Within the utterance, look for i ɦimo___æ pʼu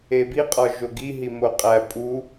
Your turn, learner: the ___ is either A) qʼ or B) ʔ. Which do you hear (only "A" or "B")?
A